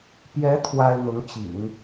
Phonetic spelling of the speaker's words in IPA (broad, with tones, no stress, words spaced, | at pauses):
pjɛ˧˥ t̪ʰwa˥ɪ̯n̪ʊ˧˥ŋ t͡ɕḭ˨˩˦ŋ